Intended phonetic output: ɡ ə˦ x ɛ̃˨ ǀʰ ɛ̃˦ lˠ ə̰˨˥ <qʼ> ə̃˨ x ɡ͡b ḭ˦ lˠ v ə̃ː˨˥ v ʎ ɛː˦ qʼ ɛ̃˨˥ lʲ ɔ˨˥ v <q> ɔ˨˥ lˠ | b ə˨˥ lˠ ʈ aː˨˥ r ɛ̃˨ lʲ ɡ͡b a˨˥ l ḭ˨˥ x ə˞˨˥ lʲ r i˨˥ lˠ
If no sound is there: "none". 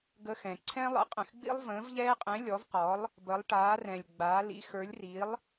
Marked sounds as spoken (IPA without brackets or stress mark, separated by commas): qʼ, q